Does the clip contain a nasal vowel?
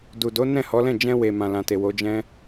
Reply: yes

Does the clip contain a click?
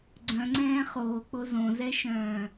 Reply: yes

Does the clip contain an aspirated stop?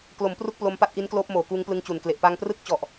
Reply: no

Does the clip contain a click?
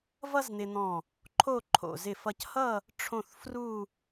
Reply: yes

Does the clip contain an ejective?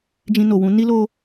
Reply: no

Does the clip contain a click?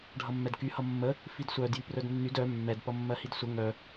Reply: no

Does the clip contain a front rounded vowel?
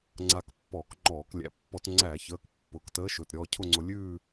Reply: no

